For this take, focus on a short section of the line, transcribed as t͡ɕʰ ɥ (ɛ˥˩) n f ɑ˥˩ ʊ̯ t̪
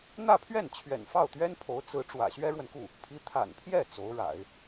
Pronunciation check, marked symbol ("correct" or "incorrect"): incorrect